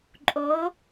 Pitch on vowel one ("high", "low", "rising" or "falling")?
rising